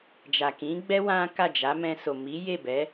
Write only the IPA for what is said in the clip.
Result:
d͡ʒa˨kĩ˨˦ɡ͡bɛ˦ wã˦ ka˦˨d͡ʒa˨˦ mɛ̃˧so˨ mi˨˦je˦˨bɛ˨˦

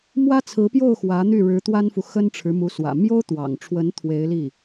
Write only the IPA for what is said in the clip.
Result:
mwä˥t͡sʰɹ̩˧˥pjo˥˩ʊ̯ xwä˧˥n̪y˥˩ɻɻ̩˧˥ t̪wa˥nfu˨ xə˥nʈ͡ʂʰɻ̩˧˥mu˧˥swä̰˨˩ mjo˥ʊ̯t̪wɑ̰˨˩ŋʈ͡ʂʰwə˧˥n t̪ʰwe˧˥ɪ̯ li˥˩

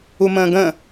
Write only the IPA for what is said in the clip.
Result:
umə̃ːɡə̃

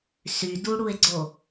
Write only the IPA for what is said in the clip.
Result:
syduɽue̯ɡ͡ǀo

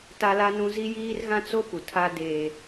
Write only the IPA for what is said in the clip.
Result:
ta˦la˦nũ˦ zi˦jiː˦rɣã˦ t͡so˦pu˨ tʰa˦deː˦

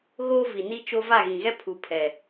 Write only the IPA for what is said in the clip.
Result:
ɣo˦ vi˨ni˦t͡ʃo˦ va˦˨ɣĩ˨ɣɛ˦ pʰu˨ pʰɛ˨

